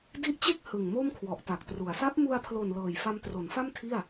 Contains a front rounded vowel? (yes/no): no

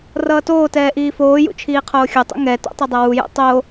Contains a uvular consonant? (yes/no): yes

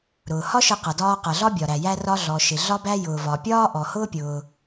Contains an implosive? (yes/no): no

